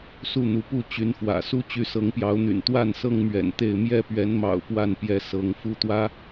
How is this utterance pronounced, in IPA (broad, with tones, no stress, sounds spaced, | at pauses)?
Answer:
s u˥˨ n̪ u˨˦ p u˥˨ t͡ɕ y˨˦ n f w ä̰˨˩ s u˦ t͡ɕ y˨˦ s ɤ˨˦ ŋ p j ɑ˨˦ ʊ̯ n̪ y̰˨˩ n t̪ w a˥˨ n s ɤ˦ ŋ m ɥ ɛ̰˨˩ n t̪ e˥˨ ɪ̯ m j ɛ˥˨ p ɥ ɛ˨˦ n m ɑ̰˨˩ ʊ̯ p w a˥˨ n p j ɛ˨˦ s ɤ˨˦ ŋ f u˦ t̪ w ä˦